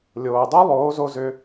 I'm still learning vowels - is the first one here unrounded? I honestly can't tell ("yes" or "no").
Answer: no